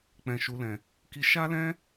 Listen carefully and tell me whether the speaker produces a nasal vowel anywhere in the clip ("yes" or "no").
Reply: yes